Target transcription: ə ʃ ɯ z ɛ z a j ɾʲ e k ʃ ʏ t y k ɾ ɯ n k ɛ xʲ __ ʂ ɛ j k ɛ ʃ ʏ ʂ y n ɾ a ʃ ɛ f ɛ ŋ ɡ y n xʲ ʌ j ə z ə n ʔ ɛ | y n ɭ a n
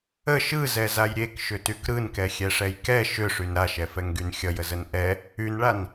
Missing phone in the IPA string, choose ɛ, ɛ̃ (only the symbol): ɛ